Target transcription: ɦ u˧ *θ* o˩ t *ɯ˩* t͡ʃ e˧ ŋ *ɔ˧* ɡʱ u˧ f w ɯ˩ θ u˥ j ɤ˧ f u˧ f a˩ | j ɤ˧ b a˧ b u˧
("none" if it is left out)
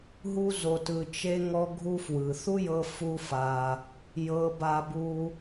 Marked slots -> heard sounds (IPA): z, ɯ˩, ɔ˧

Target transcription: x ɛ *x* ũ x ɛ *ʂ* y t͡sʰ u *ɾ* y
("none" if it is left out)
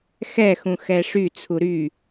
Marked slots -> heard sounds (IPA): x, ʂ, ɾ

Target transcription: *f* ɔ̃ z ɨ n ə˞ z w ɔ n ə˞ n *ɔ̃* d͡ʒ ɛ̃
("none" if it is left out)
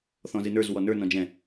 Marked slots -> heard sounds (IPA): θ, ɔ̃

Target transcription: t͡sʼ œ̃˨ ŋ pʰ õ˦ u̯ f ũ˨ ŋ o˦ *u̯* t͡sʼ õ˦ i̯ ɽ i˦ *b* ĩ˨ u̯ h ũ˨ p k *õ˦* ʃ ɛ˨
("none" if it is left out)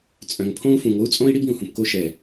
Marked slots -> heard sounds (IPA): u̯, b, o˦

